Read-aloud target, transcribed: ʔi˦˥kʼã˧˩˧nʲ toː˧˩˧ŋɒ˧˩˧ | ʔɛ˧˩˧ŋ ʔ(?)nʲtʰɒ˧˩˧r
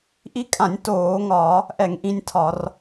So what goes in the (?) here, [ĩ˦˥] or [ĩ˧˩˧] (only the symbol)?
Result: ĩ˦˥